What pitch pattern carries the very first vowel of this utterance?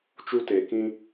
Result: high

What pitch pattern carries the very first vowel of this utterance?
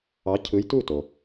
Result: rising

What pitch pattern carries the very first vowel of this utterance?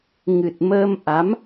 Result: low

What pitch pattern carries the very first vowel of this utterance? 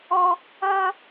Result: high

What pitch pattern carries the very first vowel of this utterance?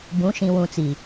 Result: rising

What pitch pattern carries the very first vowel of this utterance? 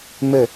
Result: falling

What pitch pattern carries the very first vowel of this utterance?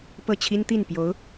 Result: falling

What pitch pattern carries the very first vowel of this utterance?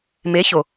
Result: rising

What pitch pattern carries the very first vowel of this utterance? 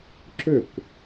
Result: falling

